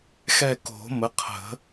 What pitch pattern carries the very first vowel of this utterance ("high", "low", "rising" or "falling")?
falling